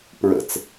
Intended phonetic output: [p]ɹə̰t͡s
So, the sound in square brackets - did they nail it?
yes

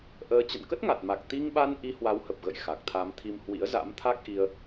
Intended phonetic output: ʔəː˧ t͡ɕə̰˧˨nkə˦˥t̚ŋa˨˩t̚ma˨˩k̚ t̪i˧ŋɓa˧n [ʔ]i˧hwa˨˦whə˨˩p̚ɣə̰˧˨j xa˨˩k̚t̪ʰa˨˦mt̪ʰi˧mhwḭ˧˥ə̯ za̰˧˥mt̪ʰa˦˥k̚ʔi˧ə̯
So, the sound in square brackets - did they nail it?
yes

